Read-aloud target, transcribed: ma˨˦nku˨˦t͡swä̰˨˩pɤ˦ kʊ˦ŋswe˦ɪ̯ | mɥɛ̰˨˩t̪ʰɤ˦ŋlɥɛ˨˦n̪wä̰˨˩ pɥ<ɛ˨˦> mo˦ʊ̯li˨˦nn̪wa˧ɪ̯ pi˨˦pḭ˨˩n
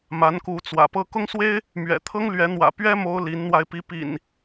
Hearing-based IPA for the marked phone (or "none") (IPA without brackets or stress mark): ɛ˦